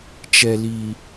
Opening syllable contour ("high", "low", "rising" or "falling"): low